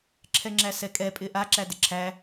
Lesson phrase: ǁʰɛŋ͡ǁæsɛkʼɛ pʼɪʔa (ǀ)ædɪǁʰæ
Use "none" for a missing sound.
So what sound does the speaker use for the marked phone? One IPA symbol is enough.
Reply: ǁ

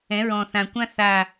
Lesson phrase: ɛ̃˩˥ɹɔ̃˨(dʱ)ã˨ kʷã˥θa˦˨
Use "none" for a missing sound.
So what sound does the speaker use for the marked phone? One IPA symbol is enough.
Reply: θ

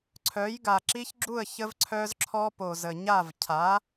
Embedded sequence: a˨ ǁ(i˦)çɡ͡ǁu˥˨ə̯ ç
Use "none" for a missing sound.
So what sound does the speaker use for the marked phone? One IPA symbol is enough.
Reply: i˦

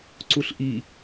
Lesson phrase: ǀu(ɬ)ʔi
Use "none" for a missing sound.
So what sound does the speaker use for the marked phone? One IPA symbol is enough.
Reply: ɬ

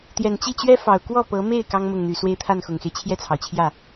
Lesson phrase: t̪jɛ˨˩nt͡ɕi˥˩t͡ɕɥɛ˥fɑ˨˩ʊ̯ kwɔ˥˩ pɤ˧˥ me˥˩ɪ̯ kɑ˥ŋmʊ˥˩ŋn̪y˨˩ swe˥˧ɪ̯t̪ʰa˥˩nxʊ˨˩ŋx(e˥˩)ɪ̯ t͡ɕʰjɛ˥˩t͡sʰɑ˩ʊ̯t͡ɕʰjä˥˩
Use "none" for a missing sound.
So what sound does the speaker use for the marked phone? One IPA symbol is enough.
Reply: e˦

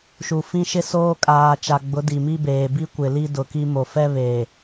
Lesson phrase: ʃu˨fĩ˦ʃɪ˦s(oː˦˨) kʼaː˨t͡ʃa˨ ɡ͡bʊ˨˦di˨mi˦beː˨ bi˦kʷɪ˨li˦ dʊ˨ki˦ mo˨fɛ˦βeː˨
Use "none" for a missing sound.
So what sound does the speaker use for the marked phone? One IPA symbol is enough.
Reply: oː˦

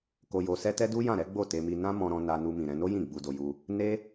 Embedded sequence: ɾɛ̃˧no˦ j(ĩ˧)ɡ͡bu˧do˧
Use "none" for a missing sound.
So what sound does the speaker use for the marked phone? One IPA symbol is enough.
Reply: ĩ˦˨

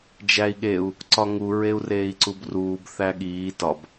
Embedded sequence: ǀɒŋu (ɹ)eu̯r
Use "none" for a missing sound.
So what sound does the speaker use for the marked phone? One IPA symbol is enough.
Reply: ɹ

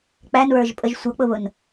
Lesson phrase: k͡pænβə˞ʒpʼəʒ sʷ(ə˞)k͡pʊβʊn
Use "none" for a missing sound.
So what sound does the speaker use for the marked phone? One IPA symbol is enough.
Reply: ʌ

